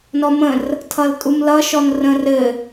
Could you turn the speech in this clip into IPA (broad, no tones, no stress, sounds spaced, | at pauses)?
n ɔ m ə̃ r | tʰ ʌ l tʼ u m l ʌ ʃ ɔ n r ə̃ r ɘ